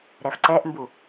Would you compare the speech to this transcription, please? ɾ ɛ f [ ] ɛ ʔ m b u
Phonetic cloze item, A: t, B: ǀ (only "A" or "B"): B